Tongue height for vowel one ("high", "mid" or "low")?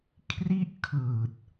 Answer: high